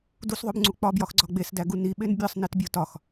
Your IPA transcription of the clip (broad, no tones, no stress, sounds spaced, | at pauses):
d u s ðˤ o b ŋ͡ǀ u k͡p ɒ b j ɒ x ɡ͡ǀ ɒ ɡ͡b e s d æ ɡ u n i ɓ e n bʲ ɒ sˤ n i t bʲ o t ɒ x